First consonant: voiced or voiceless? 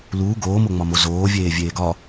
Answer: voiced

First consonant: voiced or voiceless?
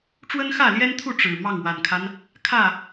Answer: voiceless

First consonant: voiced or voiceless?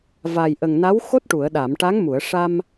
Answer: voiced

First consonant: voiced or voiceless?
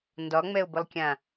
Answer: voiced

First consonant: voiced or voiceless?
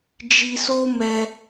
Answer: voiced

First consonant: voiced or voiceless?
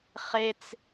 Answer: voiceless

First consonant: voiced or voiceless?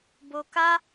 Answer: voiced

